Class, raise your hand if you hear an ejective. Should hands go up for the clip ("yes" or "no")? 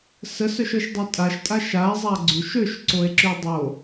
yes